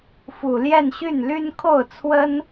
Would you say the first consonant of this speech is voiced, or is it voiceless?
voiceless